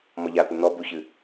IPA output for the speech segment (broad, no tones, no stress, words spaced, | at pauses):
mɔʎat̪o n̪ɔ buçɨ